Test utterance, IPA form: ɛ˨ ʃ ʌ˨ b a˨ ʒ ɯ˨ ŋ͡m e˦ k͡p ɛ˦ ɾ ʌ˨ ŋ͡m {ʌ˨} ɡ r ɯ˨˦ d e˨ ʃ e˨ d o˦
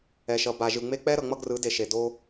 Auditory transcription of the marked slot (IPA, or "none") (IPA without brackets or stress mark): ʌ˦